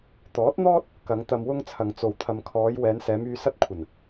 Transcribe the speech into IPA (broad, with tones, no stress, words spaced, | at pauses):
t̪ɔː˨˥t̚n̪ɔː˥t̚ | kɐ˨˧ŋt̪ɐ˧mwʊ˥ŋ t͡sʰɐ˨ŋt͡so˨w t̪ʰɐ˨mkʰɔː˨˧j wɛː˨˧nsɛː˨˧myː˧ sɐ˥t̚ kʷʰɐ˨˩n